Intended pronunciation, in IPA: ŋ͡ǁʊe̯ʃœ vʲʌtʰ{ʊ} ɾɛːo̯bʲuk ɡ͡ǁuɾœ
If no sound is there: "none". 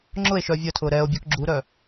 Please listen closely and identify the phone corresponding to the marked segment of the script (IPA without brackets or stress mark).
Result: ʊː